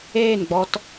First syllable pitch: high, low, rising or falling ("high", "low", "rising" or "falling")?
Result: falling